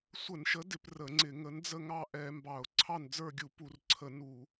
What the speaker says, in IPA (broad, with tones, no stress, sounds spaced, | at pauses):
sʷ ə˧˩˧ n ʃ ə˨˥ d ɪ˧˩˧ p r ə˧˩˧ ŋ͡ǀ ɪ˧˩˧ ŋ ə˨˥ n d͡z ə˥˨ ŋ ɑ˥˨ ʔ ɛ˧˩˧ m b ɑ˧˩˧ ʊ̯ ǀʰ ɑ˥˨ n d͡z ə˞˥˨ ɡʲ u˧˩˧ p u˧˩˧ r ǀʰ ə˧˩˧ n u˧˩˧